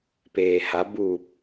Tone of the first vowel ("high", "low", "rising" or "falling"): low